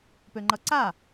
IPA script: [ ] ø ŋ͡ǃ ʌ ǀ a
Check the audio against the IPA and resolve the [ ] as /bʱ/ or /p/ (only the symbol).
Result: p